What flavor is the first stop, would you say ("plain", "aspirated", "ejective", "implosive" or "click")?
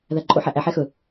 click